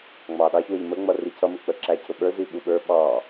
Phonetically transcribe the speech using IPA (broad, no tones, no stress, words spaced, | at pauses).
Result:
ŋ͡mɑɗɑçwəʎ məŋ͡mʌri cʰʌmʊk͡pə ǁæcʰʊɓə˞ ziɓuɓə˞ ɓɑ